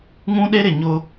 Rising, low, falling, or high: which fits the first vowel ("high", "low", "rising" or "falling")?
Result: high